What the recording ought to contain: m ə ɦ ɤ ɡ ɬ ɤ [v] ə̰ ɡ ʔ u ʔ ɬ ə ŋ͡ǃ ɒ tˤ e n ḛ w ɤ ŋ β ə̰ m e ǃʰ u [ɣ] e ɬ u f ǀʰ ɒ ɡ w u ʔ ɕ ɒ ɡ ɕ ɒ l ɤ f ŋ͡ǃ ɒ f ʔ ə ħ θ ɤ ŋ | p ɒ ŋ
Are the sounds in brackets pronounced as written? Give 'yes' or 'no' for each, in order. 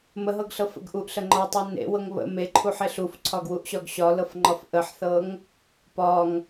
no, no

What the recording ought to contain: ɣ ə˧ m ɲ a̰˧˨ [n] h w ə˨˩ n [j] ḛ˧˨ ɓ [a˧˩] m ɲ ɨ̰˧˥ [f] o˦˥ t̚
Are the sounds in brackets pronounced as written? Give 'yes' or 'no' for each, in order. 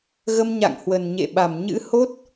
no, no, yes, no

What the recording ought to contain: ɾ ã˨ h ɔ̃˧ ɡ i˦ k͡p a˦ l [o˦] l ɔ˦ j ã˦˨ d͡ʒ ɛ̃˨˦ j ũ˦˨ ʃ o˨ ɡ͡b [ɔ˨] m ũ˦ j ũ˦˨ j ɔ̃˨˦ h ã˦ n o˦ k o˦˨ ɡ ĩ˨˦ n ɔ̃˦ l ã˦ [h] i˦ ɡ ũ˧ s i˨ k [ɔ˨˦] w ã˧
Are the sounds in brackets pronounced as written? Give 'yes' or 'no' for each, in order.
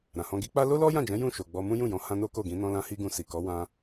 yes, no, yes, yes

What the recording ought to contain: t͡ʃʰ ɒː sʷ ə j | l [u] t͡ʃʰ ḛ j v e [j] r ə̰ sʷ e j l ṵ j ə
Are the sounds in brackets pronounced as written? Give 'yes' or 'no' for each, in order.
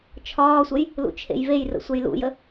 no, yes

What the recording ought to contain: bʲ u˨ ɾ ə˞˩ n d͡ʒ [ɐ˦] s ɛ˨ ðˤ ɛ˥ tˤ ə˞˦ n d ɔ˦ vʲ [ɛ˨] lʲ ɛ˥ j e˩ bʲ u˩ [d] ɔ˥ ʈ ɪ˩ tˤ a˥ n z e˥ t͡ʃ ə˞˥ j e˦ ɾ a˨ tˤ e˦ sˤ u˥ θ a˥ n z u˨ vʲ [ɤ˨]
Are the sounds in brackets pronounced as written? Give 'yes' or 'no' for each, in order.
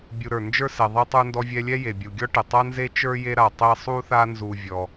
no, no, no, no

